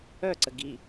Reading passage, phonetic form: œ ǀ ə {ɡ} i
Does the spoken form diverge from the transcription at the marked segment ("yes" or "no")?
no